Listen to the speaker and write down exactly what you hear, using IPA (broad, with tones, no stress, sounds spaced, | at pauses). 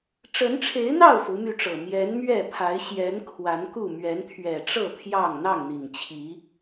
ʈ͡ʂ ə˨˦ n ʈ͡ʂʰ e˨˦ ɪ̯ n̪ ɑ˥˨ ʊ̯ f u˨˦ m y˧ ʈ͡ʂ ɤ˨˩ m j ɛ˨˦ n m ɥ ɛ˥˨ pʰ a˨˦ ɪ̯ ɕ j ɛ˨˦ n kʰ w a˨˦ n k u˥˨ m ɥ ɛ˨˦ n t̪ʰ ɥ ɛ˨˩ ʈ͡ʂ ɤ˥˨ pʰ j ɑ˥˨ ŋ n̪ ɑ˥˨ ŋ n̪ i˨˩ ŋ t͡ɕʰ i˨˦